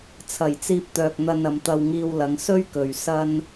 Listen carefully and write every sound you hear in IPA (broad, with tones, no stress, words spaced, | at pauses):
t͡sʰɐ˨˩jt͡siː˧p̚t̪œː˨k̚n̪ɐ˧n ɐ˨˧mt̪ɐ˧wŋiː˧wlɐ˨˧ŋ sɵ˥ɥkɵ˨ɥ sɐ˥n